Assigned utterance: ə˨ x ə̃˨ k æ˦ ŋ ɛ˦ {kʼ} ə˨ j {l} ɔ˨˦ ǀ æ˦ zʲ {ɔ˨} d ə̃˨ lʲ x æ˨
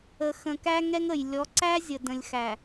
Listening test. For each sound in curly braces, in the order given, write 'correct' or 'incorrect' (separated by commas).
incorrect, incorrect, incorrect